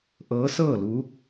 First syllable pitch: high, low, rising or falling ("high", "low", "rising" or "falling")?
rising